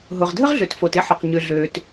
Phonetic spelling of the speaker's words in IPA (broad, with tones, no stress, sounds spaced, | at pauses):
ɦ ʊ˩ ʁ dʱ ə˥ ʁ ɮ ø˩ t f o˩ t ɪ˥ ħ ʊ˩ q ɲ ʏ˩ ɮ øː˩ t